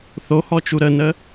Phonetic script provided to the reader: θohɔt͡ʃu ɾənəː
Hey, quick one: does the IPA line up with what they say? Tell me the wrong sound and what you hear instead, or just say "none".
none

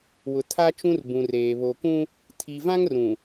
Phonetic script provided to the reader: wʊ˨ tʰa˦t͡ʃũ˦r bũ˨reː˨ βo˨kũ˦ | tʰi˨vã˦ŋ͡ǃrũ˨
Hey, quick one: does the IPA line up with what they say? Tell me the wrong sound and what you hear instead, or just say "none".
ŋ͡ǃ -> ŋ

